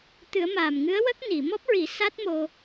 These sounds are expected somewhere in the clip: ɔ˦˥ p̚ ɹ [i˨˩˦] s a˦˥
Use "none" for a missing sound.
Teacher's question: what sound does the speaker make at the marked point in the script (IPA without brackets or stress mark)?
i˨˩˦